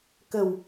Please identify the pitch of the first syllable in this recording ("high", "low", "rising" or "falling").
low